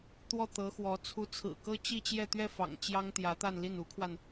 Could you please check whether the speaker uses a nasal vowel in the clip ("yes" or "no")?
no